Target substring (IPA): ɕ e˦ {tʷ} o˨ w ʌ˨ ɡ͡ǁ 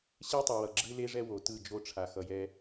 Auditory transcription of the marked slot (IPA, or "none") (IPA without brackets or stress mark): tˤ